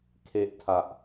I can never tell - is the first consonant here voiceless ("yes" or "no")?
yes